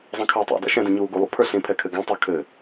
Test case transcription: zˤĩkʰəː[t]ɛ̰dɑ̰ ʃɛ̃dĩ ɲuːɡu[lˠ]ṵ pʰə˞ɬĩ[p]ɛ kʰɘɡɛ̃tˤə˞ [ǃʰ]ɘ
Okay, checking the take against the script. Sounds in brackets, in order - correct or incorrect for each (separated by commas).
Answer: incorrect, correct, incorrect, incorrect